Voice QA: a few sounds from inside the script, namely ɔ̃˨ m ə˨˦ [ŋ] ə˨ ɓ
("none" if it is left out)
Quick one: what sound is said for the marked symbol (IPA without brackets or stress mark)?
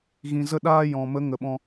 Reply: ŋ